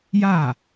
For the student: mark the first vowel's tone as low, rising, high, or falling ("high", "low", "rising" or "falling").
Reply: falling